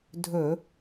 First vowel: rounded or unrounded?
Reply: rounded